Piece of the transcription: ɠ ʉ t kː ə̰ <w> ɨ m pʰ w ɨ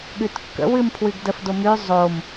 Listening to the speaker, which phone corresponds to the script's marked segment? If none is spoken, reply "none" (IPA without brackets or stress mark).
w